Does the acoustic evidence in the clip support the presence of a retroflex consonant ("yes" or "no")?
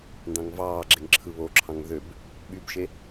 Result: no